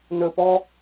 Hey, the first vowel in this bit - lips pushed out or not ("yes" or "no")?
yes